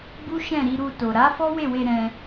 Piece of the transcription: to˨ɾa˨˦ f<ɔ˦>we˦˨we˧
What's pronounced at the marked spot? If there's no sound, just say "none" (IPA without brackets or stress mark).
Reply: ɔ˦